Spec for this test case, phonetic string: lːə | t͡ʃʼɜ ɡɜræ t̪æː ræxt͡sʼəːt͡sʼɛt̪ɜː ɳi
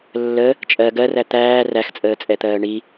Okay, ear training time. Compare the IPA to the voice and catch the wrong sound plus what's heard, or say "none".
none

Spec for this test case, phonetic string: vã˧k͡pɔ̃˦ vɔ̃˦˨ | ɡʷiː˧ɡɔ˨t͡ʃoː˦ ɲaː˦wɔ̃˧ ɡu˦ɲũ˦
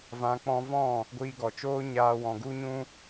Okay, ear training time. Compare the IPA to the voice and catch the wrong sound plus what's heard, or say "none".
none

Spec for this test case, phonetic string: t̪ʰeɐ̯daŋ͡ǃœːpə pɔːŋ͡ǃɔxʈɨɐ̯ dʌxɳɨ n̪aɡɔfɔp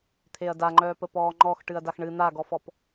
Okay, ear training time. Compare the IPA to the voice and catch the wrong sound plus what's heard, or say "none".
ʌ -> a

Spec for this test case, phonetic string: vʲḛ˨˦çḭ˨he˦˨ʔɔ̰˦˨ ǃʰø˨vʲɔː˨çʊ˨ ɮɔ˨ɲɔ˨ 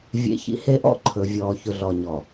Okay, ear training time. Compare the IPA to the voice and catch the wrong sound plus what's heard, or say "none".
ø˨ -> ɵ˨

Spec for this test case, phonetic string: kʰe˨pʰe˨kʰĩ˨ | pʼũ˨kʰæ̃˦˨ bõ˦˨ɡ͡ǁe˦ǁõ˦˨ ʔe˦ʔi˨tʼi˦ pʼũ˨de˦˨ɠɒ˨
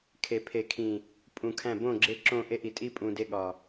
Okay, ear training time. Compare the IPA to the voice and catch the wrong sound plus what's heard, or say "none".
none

